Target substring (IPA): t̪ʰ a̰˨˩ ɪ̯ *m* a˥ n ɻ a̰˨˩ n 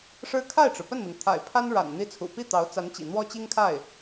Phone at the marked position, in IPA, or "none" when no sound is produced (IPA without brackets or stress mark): pʰ